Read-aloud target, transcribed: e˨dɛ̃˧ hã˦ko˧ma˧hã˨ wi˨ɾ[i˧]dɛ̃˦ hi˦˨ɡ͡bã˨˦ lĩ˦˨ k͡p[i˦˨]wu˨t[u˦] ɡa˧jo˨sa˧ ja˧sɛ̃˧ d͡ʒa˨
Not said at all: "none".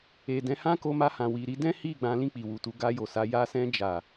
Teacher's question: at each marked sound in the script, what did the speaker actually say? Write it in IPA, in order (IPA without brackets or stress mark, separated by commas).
i˧, i˨, u˧